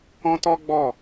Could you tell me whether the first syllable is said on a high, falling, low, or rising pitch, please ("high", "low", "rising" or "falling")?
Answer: high